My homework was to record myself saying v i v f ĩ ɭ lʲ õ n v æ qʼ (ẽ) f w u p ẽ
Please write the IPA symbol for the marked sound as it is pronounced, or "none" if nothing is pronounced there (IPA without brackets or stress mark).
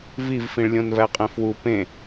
ẽ